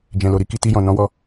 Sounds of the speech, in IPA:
d͡ʒ ɛ̃˨ l o˨ ɾ i˧ k i˧ t i˧ j ɔ̃˨ n ɔ̃˨˦ w ɔ˧

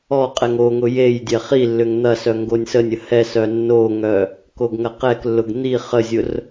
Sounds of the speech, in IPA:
ɔ qʼ ɛ ŋ o ŋ ʊ j e j dʲ ɛ χ i lː ʏ ŋ n̪ ɐ s œ ŋ ɡ o nʲ s ə nʲ ə h ɛ s œ nː o ŋ œ | k o ɡ ŋ ɐ q ɛ k lː ʊ ɡ n̪ i χ ə zʲ ʊ r

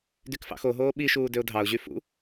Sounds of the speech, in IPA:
d y k f ɑ̰ x o ɦ oː ɓ i ʃ uː d ø ʊ̯ dʱ ɑ ʊ̯ ʑ y f ṵ

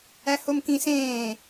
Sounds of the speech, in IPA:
æ h o m k ĩ s ẽː

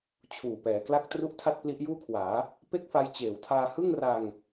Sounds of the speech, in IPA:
t͡ɕʰ uː˨˩ p ɛː˩˦ k l a˥˩ k̚ t r u˥˩ ʔ tʰ a˥˩ t̚ p l i˦˥ ʔ j uː˥˩ kʰ w aː˩˦ | p e˥˩ k̚ f a˧ j t͡ɕ eː˨˩ w tʰ aː˧ h ɯ˥˩ ŋ r a˧ ŋ

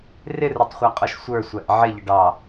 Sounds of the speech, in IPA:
r ɪ r ʊ tˤ χʷ æ qʼ ɔ ʃ sʷ ə˞ sʷ æ ʔ ʕ ɪ ʎ ə ɖ ɑ

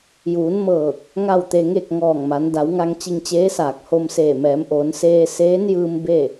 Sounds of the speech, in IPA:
j uː˩˧ n m ɤː˧˩ k̚ | ŋ a˥˨ w t̪ e˧ ŋ e˥˨ k̚ ŋ ɔː˧˩ ŋ m a˩˧ n d a˩˧ w ŋ a˧ ŋ t͡ɕ i˧ ŋ t͡ɕ eː˧˥ s aː˧˩ k̚ h o˧ m s eː˧˩ m ɛː˩˧ m ʔ oː˩˧ n s eː˧ s eː˧˥ n j ɯː˧ m b e˥˨

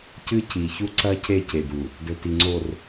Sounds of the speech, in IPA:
c ɨ˦ c i˨ ç u˦ ǀ ɐ˦ c e˦˨ c e˨ d u˨ | d ɵ˨ t i˨ ŋ͡ǀ o˨ r

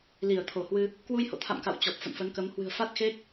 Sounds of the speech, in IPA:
l i˧˩ ə̯ t̪ʰ o˧˩ h w ɨ˧ | k w u˧ j h o̰˧˨ t̪ʰ a̰˧˨ m k a̰˧˨ w t͡ɕ ɔ˨˩ p̚ f ə̰˧˨ n f ə˨˦ n k ə˨˦ m h w ɨ̤˨˩ ə̯ f a˦˥ t̚ x e˦˥ k̚

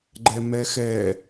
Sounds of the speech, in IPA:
ɡ͡ǃ ɛ m ɛ x ɛ

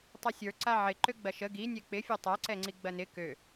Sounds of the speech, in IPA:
tˤ ɛ sʲ ə˞ ǀ a ʕ ɪ ǃ ø ɡ͡b ɐ ʃ ə ɡ i nʲ ɛ k͡p ɪ fʲ o tˤ a ǀ ɛ ŋ͡ǀ i ɡ͡b ɐ n ɪ k ø

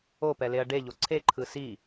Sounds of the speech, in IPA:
o p ɛ l e ɐ̯ ɖ e ʎ o ǀʰ e ǃʰ ɯ s i

